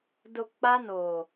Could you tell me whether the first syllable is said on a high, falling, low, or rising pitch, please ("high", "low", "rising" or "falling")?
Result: low